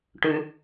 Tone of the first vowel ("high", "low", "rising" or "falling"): high